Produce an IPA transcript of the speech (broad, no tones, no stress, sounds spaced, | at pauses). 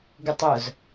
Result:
ɡ u tˤ ʊ z